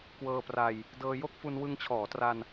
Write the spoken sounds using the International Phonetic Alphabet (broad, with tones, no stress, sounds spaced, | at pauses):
k w ɤː˧ p r a˧ j | d ɤː˧ j o˥˩ k̚ f u˧ n w ɯ˧ ŋ t͡ɕʰ ɔː˩˦ t r a˧ n